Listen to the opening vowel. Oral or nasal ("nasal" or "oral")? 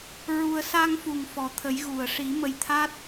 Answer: oral